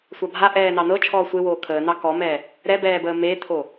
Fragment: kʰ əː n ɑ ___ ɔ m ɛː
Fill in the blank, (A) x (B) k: B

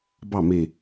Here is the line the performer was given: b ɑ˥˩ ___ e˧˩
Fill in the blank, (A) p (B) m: B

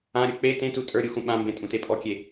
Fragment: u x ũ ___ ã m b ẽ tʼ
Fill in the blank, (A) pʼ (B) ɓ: B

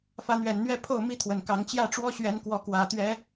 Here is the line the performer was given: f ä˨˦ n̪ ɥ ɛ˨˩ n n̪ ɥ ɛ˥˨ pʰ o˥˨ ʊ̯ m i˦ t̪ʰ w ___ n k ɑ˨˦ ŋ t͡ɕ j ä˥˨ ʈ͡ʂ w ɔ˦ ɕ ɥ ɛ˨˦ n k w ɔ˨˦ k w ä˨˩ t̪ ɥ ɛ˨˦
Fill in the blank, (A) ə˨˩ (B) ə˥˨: A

